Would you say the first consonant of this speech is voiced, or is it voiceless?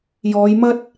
voiced